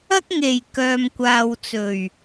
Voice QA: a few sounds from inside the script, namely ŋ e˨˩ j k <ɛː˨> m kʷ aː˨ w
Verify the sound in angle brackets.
incorrect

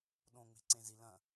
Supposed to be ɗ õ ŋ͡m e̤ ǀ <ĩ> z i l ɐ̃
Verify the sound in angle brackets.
incorrect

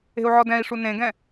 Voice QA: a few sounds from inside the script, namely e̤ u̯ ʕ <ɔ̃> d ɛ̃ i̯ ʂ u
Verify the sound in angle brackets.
incorrect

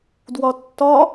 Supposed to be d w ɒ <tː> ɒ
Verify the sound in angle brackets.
correct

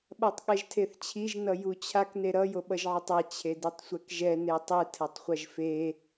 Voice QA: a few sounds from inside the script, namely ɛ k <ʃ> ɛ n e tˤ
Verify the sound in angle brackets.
incorrect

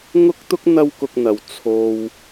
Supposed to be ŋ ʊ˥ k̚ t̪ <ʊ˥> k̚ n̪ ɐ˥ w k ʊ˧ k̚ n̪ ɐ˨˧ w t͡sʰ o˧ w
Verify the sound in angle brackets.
correct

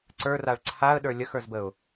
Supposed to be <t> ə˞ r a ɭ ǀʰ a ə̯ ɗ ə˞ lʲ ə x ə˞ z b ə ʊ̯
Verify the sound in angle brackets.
incorrect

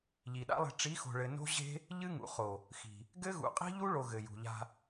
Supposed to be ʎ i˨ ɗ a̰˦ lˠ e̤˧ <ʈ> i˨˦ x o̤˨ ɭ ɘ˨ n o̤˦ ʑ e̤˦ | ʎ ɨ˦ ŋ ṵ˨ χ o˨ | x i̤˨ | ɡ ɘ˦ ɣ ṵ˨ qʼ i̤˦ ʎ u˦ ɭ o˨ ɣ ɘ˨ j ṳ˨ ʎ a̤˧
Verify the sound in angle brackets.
incorrect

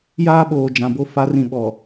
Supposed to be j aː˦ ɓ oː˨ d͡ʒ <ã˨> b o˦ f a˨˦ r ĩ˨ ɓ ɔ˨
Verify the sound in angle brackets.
correct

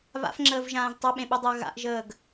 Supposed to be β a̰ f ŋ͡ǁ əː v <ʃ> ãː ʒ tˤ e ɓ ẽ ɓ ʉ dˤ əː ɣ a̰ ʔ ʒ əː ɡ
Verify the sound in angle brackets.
incorrect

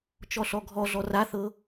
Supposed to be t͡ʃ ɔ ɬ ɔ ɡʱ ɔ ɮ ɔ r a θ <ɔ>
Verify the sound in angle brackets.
incorrect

